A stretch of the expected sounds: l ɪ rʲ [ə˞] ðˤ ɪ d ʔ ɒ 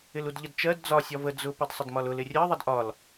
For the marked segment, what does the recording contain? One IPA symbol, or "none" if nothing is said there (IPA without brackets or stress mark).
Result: ɜ